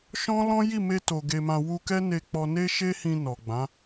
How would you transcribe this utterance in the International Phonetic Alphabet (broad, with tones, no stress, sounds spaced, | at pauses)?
ʃ ɔ̃˦ l ɔ̃˦ j i˦˨ m e˧ t o˨ ɡ e˧ m ã˧ w u˧ k ɛ˦ n e˧ k͡p ɔ˧ n e˦ ʃ e˦ h ĩ˧ n ɔ˨ ɡ͡b ã˨˦